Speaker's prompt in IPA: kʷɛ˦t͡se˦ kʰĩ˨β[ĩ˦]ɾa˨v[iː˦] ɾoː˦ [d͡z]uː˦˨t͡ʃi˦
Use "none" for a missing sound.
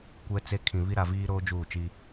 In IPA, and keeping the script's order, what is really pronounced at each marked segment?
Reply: i˦, iː˦, d͡ʒ

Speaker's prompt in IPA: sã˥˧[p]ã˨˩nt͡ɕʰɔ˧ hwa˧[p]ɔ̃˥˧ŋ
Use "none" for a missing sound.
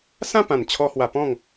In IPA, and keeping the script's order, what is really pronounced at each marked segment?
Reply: p, p

